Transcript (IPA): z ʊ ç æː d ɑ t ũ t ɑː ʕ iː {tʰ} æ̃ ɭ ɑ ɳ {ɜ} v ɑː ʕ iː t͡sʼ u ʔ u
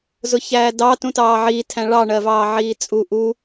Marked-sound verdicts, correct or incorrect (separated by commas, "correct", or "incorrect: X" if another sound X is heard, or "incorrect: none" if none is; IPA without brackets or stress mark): correct, correct